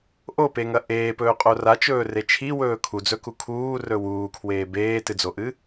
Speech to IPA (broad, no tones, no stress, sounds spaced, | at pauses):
ʔ o p e ŋ ɐ ʔ eː p ɵː qʼ o r a t͡ʃ ɵː r e t͡ʃʰ i w ɵː kʰ u d͡z ɵ k u kʰ uː r ɵ w uː kʰ w eː b eː t ɨ d͡z o ʔ ɨ